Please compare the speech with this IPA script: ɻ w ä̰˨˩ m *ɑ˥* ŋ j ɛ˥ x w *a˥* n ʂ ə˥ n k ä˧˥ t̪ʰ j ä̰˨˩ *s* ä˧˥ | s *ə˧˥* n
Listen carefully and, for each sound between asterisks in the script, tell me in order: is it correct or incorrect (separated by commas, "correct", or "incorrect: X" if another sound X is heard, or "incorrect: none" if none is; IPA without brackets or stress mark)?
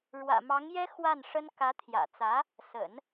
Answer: incorrect: ɑ˧˥, incorrect: a˥˩, incorrect: t͡s, incorrect: ə̰˨˩˦